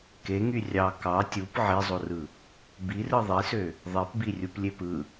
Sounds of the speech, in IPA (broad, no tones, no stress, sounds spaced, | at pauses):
k e ŋ y rʲ ɑ k ɑ tʲ u p ʕ e zˤ o r ɯ | b i r ɯ ðˤ i s ø | ðˤ e p b i rʲ u p lʲ e p ɯ